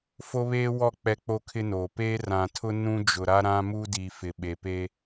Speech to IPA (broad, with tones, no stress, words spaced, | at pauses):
fo˦βeː˦wɔ˦˨ k͡pɛ˦k͡po˦kʰɪ˦noː˨ peː˦rã˨tʰʊ˦ nũ˦d͡ʒʊ˨ɾa˦ ɾã˦mu˦ di˨fɪ˨ ɓe˨pe˦